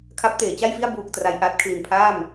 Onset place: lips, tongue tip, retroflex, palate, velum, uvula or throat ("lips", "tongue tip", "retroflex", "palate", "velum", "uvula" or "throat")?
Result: velum